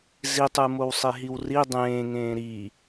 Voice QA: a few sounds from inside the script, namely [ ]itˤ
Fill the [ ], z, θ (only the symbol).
z